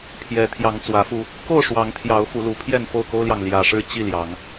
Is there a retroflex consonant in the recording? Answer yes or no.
yes